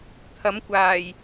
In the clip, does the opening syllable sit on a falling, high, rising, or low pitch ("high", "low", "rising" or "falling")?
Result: rising